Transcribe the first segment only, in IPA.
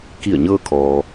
k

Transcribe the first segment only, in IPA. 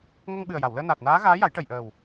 ŋ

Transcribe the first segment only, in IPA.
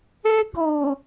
ɛ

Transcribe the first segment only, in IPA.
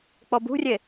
k͡p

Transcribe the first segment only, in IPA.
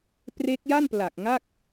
p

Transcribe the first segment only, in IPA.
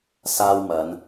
s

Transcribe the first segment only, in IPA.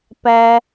p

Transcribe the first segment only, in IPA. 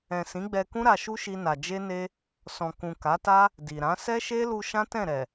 ɛ̃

